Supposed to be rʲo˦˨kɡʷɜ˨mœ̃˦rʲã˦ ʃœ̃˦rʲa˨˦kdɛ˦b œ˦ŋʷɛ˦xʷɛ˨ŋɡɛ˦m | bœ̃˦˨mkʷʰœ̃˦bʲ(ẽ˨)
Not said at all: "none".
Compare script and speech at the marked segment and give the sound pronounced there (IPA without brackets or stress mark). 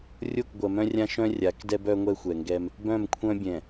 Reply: ɛ̃˨